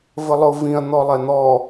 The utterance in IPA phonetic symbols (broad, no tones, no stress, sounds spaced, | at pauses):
v ə lˠ ʊ v ĩ ɐ̯ n̪ ɔ lˠ ɛ n̪ ɔ